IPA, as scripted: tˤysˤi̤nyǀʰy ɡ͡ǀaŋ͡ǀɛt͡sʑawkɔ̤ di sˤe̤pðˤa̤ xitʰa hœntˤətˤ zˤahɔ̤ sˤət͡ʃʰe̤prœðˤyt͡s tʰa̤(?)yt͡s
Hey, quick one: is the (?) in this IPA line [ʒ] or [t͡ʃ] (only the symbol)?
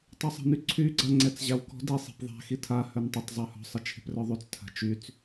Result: t͡ʃ